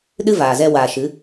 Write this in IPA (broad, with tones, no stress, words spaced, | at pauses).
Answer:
ɗɨ˦vaː˨zɛ˧ waː˨ʃɨ˨˦